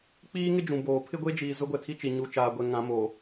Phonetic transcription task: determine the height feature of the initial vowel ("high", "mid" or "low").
high